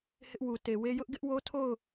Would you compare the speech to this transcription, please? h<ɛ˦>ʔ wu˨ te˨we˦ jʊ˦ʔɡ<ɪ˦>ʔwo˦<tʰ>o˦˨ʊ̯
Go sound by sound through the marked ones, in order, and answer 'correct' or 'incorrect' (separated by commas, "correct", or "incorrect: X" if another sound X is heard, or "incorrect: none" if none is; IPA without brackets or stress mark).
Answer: incorrect: ɪ˦, correct, correct